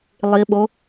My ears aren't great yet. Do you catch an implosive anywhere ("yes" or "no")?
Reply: yes